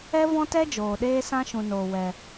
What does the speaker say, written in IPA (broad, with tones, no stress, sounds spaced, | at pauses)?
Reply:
ɛ˦ v ɔ̃˦ t ɛ˦ d͡ʒ oː˨ ɗ eː˦ s ã˦ ʃ ũ˨ n oː˨ w ɛ˧